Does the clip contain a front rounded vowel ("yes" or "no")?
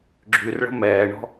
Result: yes